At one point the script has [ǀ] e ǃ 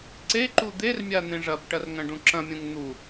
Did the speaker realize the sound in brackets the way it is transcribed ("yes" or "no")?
yes